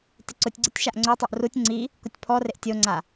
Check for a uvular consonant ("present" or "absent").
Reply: absent